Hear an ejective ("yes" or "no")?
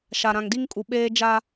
yes